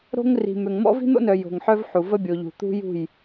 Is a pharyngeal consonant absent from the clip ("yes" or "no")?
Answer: no